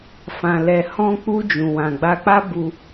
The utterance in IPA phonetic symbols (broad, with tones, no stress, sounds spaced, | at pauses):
f ã˨ l ɛ˨ h ɔ̃˧ k͡p u˧ d͡ʒ ũ˨ w ã˨ ɡ͡b a˧ k͡p a˦ b u˧